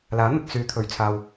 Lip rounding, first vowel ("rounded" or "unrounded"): unrounded